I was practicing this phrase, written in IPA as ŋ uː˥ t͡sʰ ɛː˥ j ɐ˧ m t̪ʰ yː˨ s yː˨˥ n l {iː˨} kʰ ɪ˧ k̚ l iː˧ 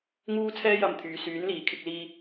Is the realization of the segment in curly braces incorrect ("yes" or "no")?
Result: no